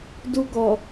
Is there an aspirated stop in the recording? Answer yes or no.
no